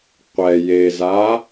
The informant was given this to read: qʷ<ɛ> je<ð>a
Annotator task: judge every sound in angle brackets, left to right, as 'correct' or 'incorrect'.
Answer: correct, incorrect: z

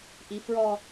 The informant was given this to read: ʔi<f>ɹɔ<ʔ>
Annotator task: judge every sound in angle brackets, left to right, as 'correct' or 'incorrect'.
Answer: correct, incorrect: none

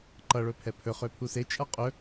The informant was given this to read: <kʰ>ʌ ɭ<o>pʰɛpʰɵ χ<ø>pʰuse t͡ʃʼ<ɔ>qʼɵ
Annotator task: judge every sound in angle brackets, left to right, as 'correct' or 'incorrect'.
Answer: incorrect: ǃ, incorrect: ɵ, correct, incorrect: ʌ

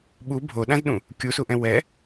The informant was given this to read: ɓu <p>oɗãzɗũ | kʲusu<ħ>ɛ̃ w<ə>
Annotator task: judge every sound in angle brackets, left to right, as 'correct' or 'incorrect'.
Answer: incorrect: bʱ, incorrect: ʔ, incorrect: ɛ

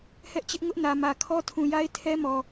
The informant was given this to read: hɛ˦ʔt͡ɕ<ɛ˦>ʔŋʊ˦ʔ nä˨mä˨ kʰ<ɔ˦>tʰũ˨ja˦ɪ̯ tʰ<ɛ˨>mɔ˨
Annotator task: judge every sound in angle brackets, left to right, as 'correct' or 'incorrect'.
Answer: incorrect: ɪ˦, correct, incorrect: ɛ˦

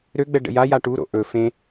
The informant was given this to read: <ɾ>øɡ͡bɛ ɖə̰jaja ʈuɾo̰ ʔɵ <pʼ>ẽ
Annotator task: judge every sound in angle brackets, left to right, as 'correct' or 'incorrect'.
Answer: correct, incorrect: f

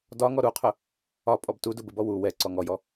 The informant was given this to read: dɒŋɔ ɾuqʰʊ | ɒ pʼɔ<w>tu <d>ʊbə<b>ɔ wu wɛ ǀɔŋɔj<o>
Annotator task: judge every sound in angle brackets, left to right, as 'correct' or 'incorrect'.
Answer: incorrect: b, correct, correct, incorrect: ɔ

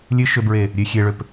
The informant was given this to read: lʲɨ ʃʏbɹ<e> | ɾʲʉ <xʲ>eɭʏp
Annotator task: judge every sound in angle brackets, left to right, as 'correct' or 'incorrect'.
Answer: correct, correct

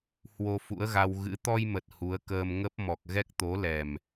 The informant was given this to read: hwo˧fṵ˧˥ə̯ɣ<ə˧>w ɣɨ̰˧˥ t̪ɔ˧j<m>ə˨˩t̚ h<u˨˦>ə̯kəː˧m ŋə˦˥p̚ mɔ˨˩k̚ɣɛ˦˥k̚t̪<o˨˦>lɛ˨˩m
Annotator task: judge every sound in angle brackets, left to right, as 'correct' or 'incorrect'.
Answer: incorrect: a˧, correct, correct, correct

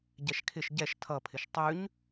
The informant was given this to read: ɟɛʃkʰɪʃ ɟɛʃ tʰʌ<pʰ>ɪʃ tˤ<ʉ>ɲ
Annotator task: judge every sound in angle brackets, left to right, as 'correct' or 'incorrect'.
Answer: correct, correct

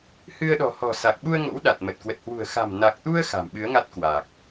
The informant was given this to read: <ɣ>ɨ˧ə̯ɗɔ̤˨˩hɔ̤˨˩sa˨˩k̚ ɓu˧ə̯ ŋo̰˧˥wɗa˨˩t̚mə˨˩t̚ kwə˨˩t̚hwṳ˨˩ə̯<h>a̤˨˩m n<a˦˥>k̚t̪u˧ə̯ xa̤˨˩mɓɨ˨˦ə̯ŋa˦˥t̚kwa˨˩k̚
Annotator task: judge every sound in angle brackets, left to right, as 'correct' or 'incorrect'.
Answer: incorrect: h, incorrect: x, incorrect: a˨˩

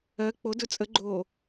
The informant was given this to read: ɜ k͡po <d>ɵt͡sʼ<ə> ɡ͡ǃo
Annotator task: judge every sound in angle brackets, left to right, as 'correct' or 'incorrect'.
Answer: correct, correct

